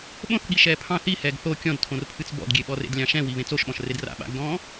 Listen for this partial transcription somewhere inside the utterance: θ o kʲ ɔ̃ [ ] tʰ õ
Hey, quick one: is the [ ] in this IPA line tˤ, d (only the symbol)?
d